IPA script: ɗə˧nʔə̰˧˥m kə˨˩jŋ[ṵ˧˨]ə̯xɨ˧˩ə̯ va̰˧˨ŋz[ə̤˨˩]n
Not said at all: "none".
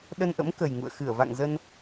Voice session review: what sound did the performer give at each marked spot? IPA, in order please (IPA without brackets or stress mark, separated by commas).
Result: ṵ˧˨, ə˧